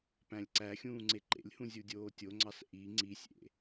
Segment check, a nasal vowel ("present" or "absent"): present